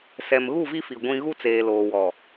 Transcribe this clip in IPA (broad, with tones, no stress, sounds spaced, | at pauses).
s ɛ˨ m ɣ u˦˨ v i˦ f i˨ ɡʷ ĩ˦ ɣ u˦ t͡s eː˨ l oː˨ w ɔ˨